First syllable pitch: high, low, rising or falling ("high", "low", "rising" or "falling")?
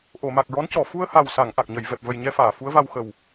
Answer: low